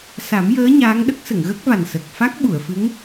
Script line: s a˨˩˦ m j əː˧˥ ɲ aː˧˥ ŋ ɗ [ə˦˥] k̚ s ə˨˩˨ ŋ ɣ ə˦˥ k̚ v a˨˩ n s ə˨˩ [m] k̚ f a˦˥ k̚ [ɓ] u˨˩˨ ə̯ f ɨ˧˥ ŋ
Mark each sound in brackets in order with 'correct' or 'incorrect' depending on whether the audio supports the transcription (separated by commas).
correct, incorrect, correct